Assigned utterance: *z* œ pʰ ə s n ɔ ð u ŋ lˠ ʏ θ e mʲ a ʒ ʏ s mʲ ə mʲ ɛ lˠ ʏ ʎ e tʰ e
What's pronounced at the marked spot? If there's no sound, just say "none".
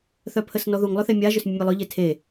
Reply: θ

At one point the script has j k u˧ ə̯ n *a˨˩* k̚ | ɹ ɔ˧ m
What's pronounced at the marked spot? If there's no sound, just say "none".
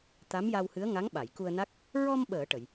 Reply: a˦˥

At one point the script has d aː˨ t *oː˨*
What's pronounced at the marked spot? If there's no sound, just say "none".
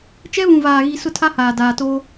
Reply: oː˦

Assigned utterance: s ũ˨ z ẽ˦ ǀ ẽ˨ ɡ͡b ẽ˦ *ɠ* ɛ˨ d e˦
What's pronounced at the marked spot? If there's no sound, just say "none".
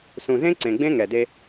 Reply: ŋ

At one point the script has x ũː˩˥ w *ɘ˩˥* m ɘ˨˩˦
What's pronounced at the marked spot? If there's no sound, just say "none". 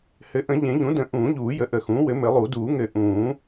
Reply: ɘ˩˥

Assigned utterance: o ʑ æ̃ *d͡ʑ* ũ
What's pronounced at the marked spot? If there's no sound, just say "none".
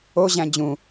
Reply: d͡ʑ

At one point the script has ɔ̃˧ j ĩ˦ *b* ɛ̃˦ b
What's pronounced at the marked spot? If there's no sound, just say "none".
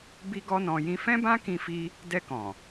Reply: f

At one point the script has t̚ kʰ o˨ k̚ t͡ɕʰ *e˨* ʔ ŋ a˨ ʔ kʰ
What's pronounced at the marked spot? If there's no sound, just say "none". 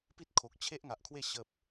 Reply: e˦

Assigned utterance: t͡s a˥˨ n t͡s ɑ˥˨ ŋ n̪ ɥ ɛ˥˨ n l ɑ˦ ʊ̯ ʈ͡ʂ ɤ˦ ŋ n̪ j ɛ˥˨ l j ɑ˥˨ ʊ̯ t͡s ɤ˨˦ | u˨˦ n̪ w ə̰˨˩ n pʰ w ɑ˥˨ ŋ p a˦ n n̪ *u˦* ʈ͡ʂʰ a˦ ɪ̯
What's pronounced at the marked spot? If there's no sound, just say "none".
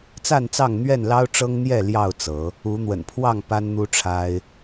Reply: u˦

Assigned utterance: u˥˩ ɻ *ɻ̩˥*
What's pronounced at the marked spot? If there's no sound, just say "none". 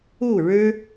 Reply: ɻ̩˥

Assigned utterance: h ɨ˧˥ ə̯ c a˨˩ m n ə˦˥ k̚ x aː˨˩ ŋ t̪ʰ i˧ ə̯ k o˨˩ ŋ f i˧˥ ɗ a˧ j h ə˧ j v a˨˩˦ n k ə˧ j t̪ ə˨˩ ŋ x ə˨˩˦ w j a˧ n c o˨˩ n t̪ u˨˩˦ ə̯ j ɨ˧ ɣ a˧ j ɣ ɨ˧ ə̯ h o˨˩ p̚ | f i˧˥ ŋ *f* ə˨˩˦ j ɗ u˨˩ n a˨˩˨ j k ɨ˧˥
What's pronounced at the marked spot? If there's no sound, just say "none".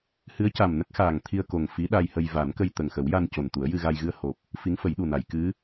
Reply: f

